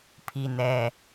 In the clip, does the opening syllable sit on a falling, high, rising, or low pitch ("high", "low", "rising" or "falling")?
high